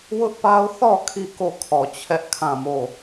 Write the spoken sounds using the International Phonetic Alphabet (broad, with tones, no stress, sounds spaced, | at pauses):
w ʊ˦ ʔ p a˦ ʊ̯ θ ɔ˦˨ kʰ i˦˨ k o˦˨ kʰ ɔ˨ t͡ɕʰ ɛ˦ ʔ kʰ ã˦˨ m o˦˨